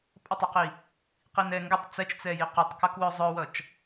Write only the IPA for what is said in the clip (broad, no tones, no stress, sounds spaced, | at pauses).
pʼ ʌ tˤ ɛ q i | q i n ɛ ŋ ɡ ə tˤ t͡s ɛ t͡ʃ t͡s ɛ j i q i tˤ k ʌ k w œ zˤ œ w ʌ t͡ʃ